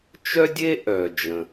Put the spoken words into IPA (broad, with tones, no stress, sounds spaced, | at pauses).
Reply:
t͡ʃ œ˥ dʲ e˥ ʔ œ˩ d͡ʒ ə̃˩